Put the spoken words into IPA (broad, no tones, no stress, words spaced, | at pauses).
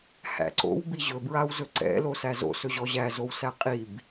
hæ̰ǀo̰w biʑɵbɹaw zɵǀɛ̰lo sæzo̰sɵʑɔ ʑæzow sæqʼib